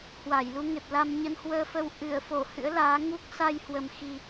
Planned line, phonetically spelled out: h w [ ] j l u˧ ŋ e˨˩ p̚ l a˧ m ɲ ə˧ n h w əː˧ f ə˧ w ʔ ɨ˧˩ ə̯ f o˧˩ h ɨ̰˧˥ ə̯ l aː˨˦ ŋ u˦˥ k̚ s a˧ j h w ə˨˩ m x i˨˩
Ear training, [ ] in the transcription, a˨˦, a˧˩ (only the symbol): a˧˩